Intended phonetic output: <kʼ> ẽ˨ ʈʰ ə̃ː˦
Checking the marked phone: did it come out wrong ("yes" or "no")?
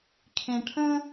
yes